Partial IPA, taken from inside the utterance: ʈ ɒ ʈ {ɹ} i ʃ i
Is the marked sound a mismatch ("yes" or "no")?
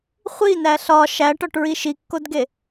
no